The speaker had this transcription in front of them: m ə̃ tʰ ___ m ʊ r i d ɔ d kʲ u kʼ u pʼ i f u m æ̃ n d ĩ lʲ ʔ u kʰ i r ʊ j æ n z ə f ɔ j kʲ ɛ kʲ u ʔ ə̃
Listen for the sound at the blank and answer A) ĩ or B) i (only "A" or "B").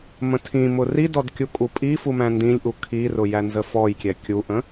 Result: A